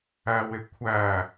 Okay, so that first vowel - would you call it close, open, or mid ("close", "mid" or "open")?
open